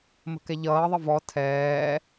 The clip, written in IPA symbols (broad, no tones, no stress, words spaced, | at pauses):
mə̤kɛʎʌːðˤə vɔ tʰɛː